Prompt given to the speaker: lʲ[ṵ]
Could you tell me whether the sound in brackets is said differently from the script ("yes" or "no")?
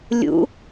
no